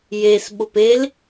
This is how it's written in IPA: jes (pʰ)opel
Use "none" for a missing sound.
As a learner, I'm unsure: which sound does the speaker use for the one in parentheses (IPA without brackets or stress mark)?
ɓ